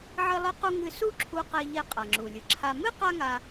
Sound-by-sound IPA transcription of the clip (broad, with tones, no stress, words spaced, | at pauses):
ʕɨ˧lˠɨ˧qu˧ ŋɨ˧su˥ ǁʰu˧qe˧ ʎe˧ qʼa˩ŋ͡ǁu˩ lʲɨ˩ǁʰa˧ mɨ˥ qa˥ŋa˧